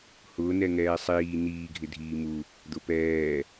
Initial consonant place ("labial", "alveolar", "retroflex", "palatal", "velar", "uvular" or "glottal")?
glottal